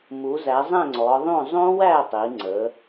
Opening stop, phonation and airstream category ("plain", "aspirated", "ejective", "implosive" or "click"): click